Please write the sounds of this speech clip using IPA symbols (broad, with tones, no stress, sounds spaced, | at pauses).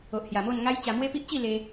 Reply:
o˨ ʔ h j a˨˩ m o˥˧ n ŋ a˦ j t͡ɕ a˧ m w e˦ p i˦ ʔ t͡ɕ i˥˧ l e˧